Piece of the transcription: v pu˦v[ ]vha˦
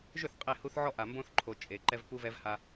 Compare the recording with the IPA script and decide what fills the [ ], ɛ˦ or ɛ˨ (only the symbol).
ɛ˦